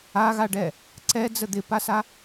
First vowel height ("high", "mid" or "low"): low